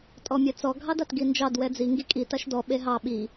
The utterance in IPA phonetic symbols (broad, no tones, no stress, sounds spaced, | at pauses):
tʼ ɔ mʲ ɛ t͡s ɔ ɡʱ ɑ d a t ɡ i n d͡ʒ ɑ d w ɛ d͡z i ŋ ɡ i kʼ i t a ʃ d ɔ ɓ e ɦ ɑ ɓ i